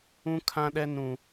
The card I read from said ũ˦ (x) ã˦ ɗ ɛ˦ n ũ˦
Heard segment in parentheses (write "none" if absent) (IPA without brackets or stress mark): kʰ